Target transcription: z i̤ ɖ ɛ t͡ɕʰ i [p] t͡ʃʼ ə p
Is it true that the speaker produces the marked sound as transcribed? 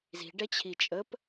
no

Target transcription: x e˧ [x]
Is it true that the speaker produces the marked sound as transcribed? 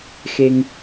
no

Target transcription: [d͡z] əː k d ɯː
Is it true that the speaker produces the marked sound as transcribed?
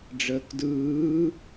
no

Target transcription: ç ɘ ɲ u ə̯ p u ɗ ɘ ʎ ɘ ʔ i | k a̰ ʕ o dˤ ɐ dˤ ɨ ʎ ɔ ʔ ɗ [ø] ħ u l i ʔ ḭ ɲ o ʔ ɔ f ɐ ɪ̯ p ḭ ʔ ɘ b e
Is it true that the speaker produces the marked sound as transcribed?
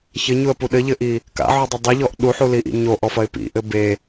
no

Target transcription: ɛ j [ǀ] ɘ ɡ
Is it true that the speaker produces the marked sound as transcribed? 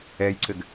yes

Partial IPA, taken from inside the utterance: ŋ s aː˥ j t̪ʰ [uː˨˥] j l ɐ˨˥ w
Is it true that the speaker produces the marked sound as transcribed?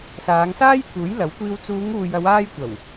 yes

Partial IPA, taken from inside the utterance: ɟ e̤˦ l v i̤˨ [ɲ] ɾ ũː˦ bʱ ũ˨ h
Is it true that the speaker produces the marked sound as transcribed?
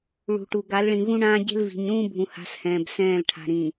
yes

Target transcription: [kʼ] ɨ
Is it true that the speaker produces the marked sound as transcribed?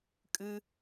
yes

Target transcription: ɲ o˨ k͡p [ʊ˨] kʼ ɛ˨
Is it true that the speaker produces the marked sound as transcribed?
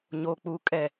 no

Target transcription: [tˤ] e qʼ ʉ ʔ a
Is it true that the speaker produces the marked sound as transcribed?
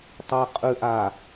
yes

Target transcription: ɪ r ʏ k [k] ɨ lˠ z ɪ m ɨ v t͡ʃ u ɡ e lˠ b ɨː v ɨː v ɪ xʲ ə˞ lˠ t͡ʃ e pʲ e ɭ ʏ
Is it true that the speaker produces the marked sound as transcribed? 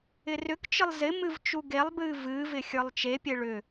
no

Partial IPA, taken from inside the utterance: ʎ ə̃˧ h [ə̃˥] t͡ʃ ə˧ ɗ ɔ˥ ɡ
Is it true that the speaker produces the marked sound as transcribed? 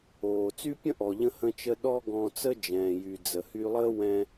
no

